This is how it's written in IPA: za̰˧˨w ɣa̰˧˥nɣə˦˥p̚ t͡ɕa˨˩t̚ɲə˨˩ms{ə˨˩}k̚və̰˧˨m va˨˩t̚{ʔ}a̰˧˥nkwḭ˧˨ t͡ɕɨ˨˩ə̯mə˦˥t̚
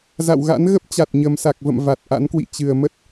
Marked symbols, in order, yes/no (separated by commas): no, yes